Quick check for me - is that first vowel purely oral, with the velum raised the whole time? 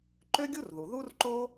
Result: yes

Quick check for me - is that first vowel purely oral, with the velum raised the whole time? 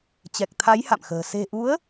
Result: yes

